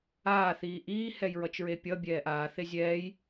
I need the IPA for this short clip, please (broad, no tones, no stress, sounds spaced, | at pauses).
aː θ iː ʔ iː h ɛ j ɹ ʌ t͡ʃ ɹ e pʲ ʌ bʲ ɛː ʔ aː θ e zʲ ɛː j